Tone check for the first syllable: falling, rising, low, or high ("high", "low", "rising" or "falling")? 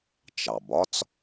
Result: low